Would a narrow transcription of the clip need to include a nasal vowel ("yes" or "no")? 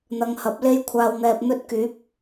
no